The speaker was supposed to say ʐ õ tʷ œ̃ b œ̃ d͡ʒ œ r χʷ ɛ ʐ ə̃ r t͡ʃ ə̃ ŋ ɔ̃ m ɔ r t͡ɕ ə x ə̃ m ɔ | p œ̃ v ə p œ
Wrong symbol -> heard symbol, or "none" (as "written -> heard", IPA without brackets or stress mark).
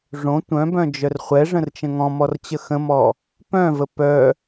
none